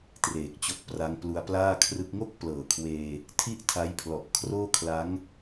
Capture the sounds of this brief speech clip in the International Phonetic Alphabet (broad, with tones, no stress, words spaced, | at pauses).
treː˨˩k̚t͡ɕo˦˥k̚pra˦˥ŋ plu˧a̯plaː˥˩kʰrɯ˦˥k̚ ŋo˥˩k̚ plɤː˨˩kʰweː˧ | tʰi˥˩ʔtʰa˦˥jpʰlɔ˨˩ʔ kʰroː˥˩kʰla˦˥ŋ